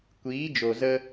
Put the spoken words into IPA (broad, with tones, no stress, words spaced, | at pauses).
kʷiː˨˦d͡ʒo˨ zə˧